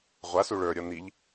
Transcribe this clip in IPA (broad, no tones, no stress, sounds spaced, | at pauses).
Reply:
ʁʷ a s u ɭ ə˞ ɾʲ ɔ n i ʎ